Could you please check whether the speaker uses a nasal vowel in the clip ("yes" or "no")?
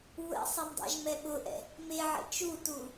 no